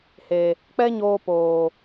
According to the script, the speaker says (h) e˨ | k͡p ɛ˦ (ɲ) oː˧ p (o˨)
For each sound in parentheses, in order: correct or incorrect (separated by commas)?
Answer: correct, correct, incorrect